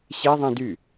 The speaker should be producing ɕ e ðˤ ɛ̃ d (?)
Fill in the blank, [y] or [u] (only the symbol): y